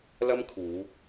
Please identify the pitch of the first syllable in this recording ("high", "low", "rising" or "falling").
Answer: high